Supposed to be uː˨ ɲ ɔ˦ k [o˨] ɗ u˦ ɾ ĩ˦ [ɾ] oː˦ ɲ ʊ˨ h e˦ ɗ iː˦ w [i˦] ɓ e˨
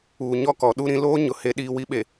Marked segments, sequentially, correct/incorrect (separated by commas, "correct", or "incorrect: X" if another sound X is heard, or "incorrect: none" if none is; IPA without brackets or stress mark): incorrect: ɔ˨, incorrect: l, correct